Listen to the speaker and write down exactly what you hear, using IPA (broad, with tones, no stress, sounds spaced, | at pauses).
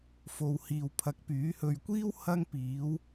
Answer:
f o˨ w h iː˨ w pʰ ɐ˨˥ k̚ p yː˨˥ h ɵ˨ ɥ kʷ iː˥ w h ɐ˥ ŋ p iː˨˥ w